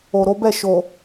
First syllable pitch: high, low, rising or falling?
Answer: low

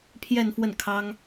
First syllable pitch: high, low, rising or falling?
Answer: falling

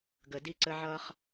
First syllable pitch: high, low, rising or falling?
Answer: low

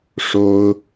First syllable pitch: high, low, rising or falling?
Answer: high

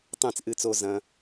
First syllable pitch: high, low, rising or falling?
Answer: falling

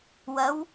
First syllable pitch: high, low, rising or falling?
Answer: rising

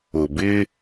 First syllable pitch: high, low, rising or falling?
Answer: low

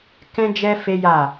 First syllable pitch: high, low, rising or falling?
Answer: high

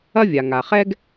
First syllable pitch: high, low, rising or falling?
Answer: high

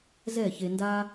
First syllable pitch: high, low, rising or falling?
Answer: falling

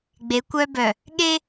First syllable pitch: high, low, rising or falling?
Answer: rising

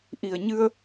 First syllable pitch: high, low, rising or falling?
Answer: low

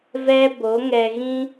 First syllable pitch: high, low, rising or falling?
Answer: high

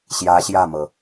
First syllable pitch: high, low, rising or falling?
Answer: rising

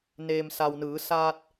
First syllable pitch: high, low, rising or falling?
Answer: low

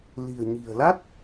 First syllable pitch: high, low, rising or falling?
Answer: low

